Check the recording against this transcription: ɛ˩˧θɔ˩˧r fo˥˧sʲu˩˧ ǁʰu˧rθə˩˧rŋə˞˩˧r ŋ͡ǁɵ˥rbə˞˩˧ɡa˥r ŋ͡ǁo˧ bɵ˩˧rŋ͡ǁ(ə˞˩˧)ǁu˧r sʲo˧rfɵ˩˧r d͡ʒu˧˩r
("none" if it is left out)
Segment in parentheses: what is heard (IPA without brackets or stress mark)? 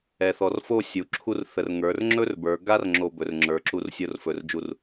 ə˞˩˧